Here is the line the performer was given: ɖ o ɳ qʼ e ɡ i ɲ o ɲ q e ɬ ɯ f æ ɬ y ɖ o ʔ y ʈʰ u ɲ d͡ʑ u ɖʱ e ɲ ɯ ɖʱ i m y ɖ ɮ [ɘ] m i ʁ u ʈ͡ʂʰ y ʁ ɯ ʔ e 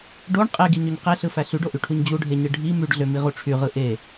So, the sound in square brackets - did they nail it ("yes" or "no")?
no